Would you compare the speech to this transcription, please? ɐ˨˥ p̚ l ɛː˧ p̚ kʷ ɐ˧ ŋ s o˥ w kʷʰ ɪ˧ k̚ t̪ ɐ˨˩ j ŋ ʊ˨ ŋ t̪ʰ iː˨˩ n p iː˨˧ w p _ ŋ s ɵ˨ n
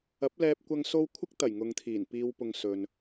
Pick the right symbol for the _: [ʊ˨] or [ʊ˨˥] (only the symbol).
ʊ˨